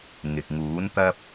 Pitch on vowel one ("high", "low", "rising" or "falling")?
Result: low